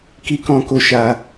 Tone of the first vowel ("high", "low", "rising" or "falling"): high